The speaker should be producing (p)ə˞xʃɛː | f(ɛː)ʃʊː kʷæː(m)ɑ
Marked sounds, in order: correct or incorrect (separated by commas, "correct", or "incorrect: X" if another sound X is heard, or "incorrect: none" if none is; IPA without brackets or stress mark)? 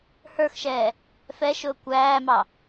incorrect: h, incorrect: ɛ, correct